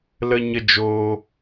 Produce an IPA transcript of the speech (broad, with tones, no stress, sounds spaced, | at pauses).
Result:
l ə˦ ɲ ə˦ d͡ʒ oː˦